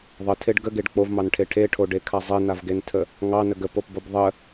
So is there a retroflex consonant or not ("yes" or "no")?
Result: yes